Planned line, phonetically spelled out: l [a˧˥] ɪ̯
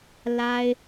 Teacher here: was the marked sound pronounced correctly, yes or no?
no